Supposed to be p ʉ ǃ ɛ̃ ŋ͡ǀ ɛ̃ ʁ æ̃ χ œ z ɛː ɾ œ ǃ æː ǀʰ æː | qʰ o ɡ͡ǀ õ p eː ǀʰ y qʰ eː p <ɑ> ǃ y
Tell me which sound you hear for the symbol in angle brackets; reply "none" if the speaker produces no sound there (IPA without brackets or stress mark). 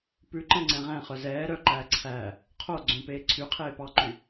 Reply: ɑ